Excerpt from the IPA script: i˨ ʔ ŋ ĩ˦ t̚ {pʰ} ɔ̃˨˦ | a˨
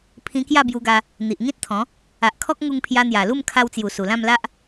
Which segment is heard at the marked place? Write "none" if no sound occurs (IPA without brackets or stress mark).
t̪ʰ